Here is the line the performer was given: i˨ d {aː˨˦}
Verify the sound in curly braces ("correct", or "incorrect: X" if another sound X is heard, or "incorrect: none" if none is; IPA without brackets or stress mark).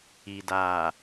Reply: incorrect: aː˨